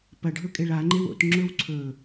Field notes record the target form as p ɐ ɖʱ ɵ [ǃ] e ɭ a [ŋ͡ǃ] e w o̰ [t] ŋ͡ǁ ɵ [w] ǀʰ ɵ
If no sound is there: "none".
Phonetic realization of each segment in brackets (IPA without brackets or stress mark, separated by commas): kʼ, ŋ͡ǃ, t, w